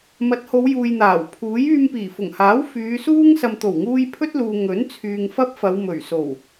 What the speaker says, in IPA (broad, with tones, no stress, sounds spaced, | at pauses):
m ɐ˨˥ t̚ h o˨˧ w j uː˨ j n̪ aː˨˩ w pʰ uː˨˥ j yː˧ m p iː˨˩ f ʊ˨˩ ŋ h aː˨˥ w f yː˨˧ s uː˥ ŋ s ɐ˨ m t̪ o˨˩ w ŋ uː˧ j pʰ ɵ˥ t̚ l uː˨ ŋ ɵ˨˥ n t͡sʰ yː˨ ŋ f ɐ˥ p̚ f ɐ˨˧ w m ɵ˨˩ ɥ s o˨˩ w